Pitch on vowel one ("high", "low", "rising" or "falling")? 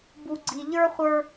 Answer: low